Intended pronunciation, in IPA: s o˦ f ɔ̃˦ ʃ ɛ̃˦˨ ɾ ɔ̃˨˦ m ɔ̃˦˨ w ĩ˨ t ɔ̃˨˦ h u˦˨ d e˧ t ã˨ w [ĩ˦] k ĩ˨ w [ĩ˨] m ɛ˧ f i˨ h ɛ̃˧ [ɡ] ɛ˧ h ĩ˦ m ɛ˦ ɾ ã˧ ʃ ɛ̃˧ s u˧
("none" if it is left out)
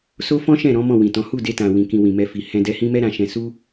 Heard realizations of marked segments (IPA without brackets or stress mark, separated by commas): ĩ˨, ĩ˨, d